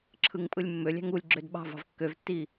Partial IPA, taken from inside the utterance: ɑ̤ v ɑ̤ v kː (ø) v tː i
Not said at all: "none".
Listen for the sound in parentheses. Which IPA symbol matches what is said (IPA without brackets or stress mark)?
ø